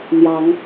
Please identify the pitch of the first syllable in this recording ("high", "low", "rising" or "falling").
rising